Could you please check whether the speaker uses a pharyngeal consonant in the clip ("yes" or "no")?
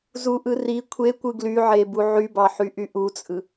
yes